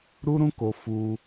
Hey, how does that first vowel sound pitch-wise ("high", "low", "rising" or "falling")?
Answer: high